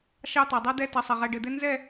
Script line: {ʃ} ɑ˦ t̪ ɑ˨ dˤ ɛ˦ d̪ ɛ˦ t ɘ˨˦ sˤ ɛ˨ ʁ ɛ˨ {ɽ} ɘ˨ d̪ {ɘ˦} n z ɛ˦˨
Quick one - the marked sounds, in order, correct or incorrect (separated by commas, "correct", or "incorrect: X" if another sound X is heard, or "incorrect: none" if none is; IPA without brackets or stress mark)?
correct, incorrect: ɖ, correct